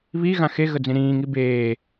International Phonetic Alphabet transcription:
β i ɣ ã x e ɣ ə d͡z ĩ ɾ ĩː ŋ i b eː

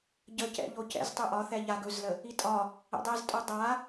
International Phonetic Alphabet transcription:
ɟ ə c ɛ̰ ʎ o c ɛ̰ z tˤ ɵ ʔ ɒ θ ɛ ʎ a ɡ ɵ z l ə | i tʼ ɒ | ɛ̰ dˤ ɛ z tʼ o dˤ a

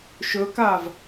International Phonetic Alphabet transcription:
ʃ ɵ k aː v

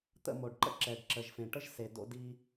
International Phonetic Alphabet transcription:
t̪ ə̰˦˨ m o˨ ɖ ǃ ə̰˦ ǁ ɛ˨ ɖ ǁ ə˨ ʒ f ẽ˨ ʈ ə˦ ʒ s e˨ d o̰˧ d i˧

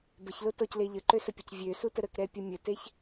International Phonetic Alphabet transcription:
b ə ç l ʊ t ɔ c l e ʎ ə ǃ ø s ə pʲ ʊ c vʲ ø s u t ə ɾ ə k ɾ ɛ pʲ ʊ mʲ ə t e ç

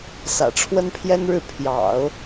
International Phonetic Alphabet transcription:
s ä̰˨˩ ʈ͡ʂʰ w ə˥ n pʰ j ɛ˥ n ɻ ɻ̩˥˩ pʰ j ɑ̰˨˩˦ ʊ̯

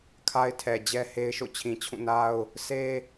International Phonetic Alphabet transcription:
kʰ a˦ ɪ̯ tʰ ɛ˨ d͡ʑ ɛ˦ h e˦ ɪ̯ ʃ o̰˦˨ t͡ɕʰ ĩ˨ t͡ɕʰ ũ˦˨ n a˦ ʊ̯ | s e˦

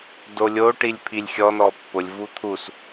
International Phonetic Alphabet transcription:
d o lʲ o ʈ i lʲ pʰ i lʲ xʲ ɔ n ɔ pː ʊ lʲ v u t̪ʰ u s

